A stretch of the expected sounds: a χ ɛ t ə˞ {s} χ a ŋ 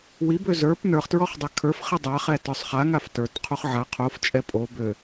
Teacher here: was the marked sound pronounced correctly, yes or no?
no